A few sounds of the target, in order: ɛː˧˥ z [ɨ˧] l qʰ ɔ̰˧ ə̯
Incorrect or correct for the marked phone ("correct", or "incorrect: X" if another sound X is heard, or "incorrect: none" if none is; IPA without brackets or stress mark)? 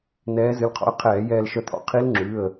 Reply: incorrect: ɨ˩˧˩